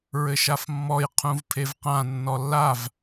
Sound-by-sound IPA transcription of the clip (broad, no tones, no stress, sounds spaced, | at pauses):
ɹ ɘ ʃ a f mː ɔ j qʰ ũ v pʰ e v q ã nː ɔ lː a v